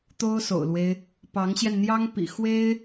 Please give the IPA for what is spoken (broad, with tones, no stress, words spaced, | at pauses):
t̪o˥ʊ̯so̰˨˩ʊ̯lwe˦ɪ̯ | pɑ˧˥ŋɕjɛ˧nn̪jɑ˥ŋ pḭ˨˩xwe˥ɪ̯